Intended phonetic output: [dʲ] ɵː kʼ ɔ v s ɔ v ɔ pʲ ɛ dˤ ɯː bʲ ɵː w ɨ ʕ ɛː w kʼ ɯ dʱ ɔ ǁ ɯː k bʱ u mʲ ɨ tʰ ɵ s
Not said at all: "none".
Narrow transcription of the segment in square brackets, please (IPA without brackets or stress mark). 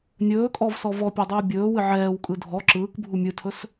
nʲ